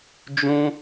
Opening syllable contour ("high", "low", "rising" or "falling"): high